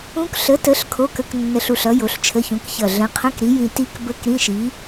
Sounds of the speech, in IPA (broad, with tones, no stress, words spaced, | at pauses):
ũ˦˥k ɬə˨˥tə˨˥ɬ kʰo˧˥˧kə˧˥˧knːə˧ɬ u˧˩ɬʌ˨˥ jo˨˥ɬt͡ʃʰə˧˥˧çũ˨˥kçʌ˧˩ ɮə̃˨˥qʰə̃˧˥˧kɾi˨˥ jĩ˧ti˦˥k bə˧˥˧k ɾĩ˧˥˧ʃi˨˥